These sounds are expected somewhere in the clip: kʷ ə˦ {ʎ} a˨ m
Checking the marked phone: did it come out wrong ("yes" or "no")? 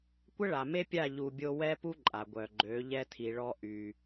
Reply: yes